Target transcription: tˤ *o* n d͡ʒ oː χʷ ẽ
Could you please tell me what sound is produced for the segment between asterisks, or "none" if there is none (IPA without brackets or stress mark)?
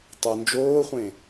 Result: o